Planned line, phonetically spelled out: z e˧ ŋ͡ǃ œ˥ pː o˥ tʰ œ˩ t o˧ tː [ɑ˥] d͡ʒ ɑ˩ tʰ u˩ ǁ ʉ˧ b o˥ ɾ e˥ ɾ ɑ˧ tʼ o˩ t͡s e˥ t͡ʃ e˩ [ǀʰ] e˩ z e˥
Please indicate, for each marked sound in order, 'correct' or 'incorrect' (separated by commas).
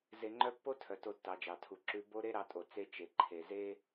incorrect, incorrect